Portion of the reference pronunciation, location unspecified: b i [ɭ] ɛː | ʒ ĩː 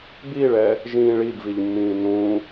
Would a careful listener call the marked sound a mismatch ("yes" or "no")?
no